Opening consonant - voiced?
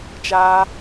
no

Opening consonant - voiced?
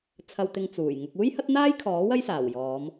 no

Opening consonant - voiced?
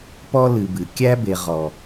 no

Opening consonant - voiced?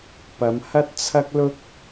no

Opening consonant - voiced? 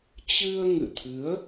no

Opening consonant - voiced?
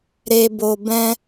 yes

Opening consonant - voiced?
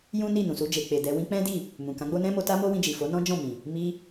yes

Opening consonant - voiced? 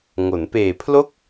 yes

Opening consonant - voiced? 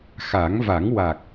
no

